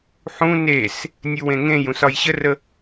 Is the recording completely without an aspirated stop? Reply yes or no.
yes